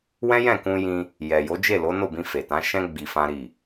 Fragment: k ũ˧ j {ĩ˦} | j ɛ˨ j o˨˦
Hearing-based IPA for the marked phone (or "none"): ĩ˧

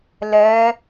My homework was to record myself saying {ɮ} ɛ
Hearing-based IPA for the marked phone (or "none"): l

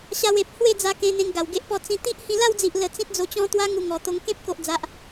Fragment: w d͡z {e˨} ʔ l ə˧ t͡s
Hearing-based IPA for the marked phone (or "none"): i˨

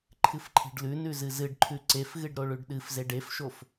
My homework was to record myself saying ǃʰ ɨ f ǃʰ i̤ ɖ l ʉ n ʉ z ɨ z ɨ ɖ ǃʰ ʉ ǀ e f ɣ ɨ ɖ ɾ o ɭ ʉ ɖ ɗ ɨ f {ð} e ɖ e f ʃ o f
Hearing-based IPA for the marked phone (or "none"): z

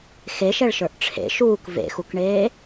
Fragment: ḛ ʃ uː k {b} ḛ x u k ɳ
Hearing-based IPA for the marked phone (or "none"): v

